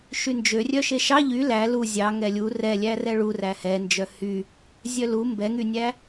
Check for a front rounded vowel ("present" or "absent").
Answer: present